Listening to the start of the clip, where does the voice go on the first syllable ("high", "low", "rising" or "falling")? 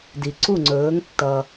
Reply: low